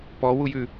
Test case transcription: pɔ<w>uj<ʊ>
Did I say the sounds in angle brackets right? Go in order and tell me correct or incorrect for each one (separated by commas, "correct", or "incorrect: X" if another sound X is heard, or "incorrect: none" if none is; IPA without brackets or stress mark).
correct, incorrect: ʉ